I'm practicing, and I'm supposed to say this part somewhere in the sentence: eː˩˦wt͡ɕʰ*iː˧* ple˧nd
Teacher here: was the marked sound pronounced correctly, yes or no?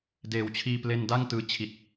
yes